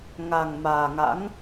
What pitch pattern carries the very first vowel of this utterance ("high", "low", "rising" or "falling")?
low